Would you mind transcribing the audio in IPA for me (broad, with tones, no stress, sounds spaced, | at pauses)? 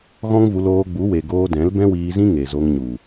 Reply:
ɣ ɔ̃˦ ŋ v u˧ l oː˧ ɡ͡b u˨˦ w e˨ ɡ oː˧ d ɛ̃˨˦ l b ɛ̃˦ w iː˧ z ĩ˦ ŋ e˨ z o˧ ŋ ɲ u˨